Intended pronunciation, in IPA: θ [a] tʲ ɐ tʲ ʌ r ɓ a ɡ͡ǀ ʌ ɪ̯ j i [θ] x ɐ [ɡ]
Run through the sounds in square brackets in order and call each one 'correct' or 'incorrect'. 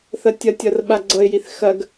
incorrect: ɐ, correct, correct

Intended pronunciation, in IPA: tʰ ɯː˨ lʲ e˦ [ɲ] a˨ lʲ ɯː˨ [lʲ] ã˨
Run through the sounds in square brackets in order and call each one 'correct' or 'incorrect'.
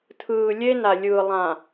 incorrect: n, incorrect: lˠ

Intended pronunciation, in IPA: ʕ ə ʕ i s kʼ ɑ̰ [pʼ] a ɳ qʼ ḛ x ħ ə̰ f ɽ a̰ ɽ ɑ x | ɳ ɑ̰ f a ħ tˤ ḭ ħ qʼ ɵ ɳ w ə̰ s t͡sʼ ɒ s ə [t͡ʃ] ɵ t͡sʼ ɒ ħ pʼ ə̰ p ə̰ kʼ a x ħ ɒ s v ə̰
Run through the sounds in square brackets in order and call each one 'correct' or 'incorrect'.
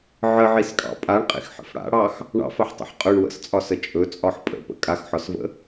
correct, incorrect: t͡ʃʼ

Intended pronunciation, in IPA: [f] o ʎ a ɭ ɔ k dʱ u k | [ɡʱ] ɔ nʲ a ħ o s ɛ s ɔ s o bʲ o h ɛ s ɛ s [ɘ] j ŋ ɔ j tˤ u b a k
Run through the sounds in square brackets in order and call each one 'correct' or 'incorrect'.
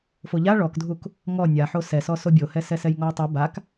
correct, incorrect: ŋ, incorrect: ɛ

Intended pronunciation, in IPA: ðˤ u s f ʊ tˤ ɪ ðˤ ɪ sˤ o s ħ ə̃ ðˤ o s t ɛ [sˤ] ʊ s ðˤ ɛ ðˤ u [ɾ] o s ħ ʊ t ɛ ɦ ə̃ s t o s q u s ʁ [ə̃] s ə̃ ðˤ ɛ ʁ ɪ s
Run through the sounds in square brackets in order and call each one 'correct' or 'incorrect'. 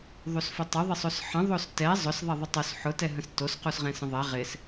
incorrect: zˤ, incorrect: tˤ, incorrect: ɛ̃

